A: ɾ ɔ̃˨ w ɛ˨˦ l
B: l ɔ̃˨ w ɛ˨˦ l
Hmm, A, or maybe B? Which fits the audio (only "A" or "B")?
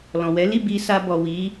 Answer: B